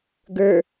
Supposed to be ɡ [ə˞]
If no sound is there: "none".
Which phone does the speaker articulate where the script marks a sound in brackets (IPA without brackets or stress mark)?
ə˞